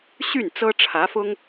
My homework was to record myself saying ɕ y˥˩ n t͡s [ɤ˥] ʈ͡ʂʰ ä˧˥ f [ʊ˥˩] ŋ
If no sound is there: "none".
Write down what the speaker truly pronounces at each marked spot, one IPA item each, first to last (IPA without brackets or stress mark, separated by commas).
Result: ɤ˥, ʊ˥